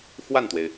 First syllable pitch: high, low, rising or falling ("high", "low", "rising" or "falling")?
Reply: falling